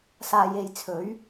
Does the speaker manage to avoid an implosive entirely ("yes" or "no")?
yes